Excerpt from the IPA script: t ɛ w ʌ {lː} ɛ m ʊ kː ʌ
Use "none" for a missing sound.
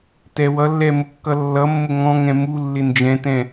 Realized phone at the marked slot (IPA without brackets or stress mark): lː